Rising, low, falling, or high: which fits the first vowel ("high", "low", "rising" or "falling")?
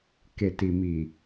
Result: low